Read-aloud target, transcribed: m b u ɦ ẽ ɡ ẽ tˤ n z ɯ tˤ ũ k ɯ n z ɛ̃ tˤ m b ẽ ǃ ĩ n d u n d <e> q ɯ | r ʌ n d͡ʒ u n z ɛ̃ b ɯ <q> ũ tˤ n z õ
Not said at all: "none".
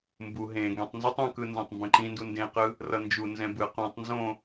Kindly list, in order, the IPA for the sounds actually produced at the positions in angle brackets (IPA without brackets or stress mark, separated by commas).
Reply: ẽ, q